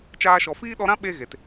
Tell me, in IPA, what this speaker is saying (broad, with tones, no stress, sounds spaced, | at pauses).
t͡ʃ aː˦ ʃ ɔ˧ f iː˦ ɗ ɔ˧ ɾ ã˦ ɓ e˦ ɣ e˨ t